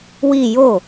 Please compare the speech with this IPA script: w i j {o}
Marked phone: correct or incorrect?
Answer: correct